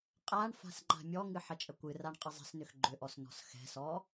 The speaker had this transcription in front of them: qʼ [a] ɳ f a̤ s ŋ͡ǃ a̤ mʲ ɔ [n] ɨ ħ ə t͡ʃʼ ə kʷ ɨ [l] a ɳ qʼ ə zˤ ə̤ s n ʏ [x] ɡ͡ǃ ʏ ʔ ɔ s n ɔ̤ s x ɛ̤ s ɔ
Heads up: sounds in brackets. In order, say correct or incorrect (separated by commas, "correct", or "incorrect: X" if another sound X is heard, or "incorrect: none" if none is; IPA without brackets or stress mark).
correct, incorrect: ŋ, incorrect: r, correct